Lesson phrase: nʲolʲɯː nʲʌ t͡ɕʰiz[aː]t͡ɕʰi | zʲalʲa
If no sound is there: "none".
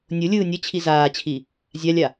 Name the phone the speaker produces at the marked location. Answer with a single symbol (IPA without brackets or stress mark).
aː